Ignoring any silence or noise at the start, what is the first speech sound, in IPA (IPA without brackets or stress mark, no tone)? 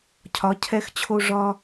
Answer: cʰ